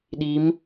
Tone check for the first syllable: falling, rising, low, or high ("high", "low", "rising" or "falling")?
rising